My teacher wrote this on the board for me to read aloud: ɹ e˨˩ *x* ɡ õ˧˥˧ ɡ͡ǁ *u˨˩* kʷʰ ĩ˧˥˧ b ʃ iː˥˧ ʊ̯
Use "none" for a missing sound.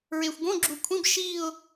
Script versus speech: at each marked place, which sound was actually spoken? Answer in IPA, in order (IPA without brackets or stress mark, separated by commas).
xʷ, u˨˩